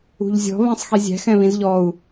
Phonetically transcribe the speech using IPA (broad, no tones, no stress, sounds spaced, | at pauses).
ṳ ʎ zʲ ɔ̤ β ɛ̃ sˤ x i zʲ æ̤ x ɛ̃ β ĩ z ʎ ɔ u̯